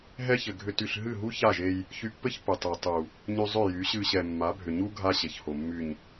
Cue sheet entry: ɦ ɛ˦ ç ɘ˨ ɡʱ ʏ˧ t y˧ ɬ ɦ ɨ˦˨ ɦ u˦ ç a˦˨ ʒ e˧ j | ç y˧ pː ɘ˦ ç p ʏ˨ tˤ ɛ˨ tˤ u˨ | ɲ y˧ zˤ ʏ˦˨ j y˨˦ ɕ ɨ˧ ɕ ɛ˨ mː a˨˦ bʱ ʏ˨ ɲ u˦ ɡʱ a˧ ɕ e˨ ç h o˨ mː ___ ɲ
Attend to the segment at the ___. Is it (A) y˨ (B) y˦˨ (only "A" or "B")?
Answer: A